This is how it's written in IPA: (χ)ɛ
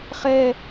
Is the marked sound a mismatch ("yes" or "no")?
no